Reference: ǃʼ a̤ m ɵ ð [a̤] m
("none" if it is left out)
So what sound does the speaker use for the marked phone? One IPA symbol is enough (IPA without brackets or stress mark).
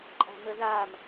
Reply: a